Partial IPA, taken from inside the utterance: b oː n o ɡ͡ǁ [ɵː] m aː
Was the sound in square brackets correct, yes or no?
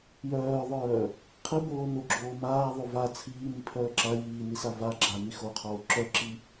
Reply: no